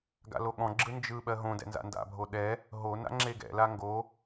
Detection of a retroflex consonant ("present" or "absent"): absent